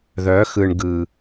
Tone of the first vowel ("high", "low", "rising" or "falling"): rising